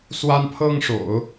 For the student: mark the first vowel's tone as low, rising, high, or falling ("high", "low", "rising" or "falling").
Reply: high